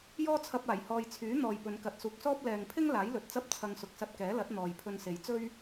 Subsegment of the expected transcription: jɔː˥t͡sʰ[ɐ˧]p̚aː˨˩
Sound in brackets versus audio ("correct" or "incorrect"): correct